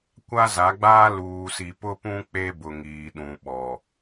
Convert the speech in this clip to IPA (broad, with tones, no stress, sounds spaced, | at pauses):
kʷ a˦ z a˨˦ ɡ͡b aː˦ l uː˨ s i˨ p ʊ˦ p ũ˦ k͡p e˦ b ʊ˨ ŋ iː˨ ɗ ũ˨ ɓ ɔ˨